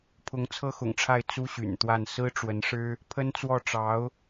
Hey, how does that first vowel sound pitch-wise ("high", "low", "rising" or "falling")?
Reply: rising